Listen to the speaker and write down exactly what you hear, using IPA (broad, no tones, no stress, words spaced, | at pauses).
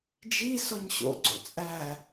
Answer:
d͡ʒi sɔɲɕo̰ ɡ͡ǀo̰t͡sʼæ